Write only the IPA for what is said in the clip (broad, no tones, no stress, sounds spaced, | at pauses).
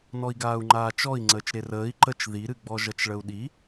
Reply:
n ɔ i̯ ɡ aː u̯ ŋ͡ǃ aː t͡ʃ ɔ i̯ ŋ͡ǀ əː t͡ʃ ɾ e r əː i̯ ǃ ə t͡ʃ ð i ɾ ɨ ɡ͡b ɔ ʒ ʌ t͡ʃ ɭ ə u̯ ɗ i